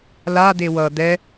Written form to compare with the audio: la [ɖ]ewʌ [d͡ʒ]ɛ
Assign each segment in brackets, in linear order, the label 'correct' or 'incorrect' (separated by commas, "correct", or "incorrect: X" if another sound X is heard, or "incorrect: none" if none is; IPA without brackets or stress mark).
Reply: incorrect: d̪, incorrect: d̪